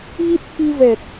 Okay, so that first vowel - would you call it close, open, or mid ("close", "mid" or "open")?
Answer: close